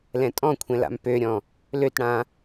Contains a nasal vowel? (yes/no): yes